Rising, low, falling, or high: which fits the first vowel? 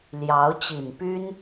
rising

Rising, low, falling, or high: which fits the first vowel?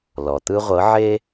low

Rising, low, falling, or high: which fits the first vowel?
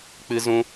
high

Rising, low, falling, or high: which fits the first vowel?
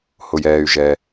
low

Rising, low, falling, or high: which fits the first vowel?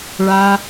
low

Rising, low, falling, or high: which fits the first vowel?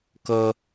high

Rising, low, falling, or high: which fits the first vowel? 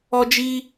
high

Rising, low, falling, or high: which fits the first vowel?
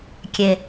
low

